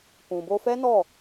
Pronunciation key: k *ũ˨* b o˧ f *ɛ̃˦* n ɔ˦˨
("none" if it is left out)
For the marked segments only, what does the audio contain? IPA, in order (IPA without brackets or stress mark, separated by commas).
ũ˨, ɛ˦